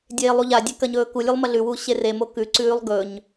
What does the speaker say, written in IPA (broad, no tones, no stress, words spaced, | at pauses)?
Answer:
dʲeːlˠuʎadʲe kɐɲɵːkulʲʉlˠ mɐɮʉwu ɕeremo kʉǀʉːlˠ ɡɵɲ